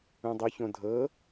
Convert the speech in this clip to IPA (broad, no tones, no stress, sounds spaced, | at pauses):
ũ dˤ o ç õ dʱ ɤ